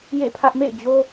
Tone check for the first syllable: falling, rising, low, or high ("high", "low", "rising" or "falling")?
falling